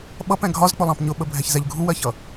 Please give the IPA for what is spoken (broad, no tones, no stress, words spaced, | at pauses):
ɓʌpɛ̃ ɡʱɒzk͡pʊlˠɑ̃p ɲʊɓəbʱɛçzɛʎ ɡʱuwɜçʌ